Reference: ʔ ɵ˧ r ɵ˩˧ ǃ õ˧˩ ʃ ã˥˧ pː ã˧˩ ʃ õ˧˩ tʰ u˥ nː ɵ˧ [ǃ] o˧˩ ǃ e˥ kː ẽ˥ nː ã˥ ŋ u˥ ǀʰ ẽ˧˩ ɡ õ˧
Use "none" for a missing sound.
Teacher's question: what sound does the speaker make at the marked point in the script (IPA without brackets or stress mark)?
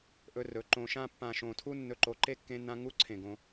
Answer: ǃ